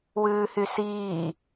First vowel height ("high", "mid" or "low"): high